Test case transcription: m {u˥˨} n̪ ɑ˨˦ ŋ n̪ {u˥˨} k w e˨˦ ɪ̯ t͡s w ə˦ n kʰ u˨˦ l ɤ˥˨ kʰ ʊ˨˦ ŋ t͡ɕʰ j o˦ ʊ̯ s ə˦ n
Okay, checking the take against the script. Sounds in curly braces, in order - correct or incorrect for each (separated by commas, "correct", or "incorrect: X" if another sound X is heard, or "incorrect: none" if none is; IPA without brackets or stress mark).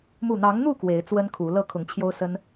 correct, correct